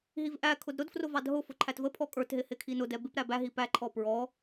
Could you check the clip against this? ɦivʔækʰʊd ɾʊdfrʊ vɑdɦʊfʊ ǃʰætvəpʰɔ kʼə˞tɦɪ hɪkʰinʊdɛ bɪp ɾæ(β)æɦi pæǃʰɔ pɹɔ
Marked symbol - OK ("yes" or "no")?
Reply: no